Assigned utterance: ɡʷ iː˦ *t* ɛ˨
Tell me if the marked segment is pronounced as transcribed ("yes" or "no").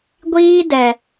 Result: no